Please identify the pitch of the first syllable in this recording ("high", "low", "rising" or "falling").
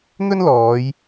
high